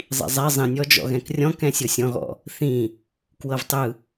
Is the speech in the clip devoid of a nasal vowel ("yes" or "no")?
no